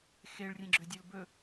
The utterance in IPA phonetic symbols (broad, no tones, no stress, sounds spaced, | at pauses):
x e ɭ rʲ ẽ ɡ͡ǁ ø dʲ ɵ l b ɵ